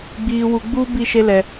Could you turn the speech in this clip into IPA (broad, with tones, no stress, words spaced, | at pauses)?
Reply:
ɡ͡biː˨wu˨ɡ͡buː˦ bi˦˨ʃe˦lɛ˨